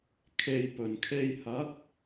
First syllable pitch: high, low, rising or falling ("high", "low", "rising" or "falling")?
low